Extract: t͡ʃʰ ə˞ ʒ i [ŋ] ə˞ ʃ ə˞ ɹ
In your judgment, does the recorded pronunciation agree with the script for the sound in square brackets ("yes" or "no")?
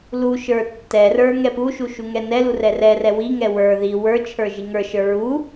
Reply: yes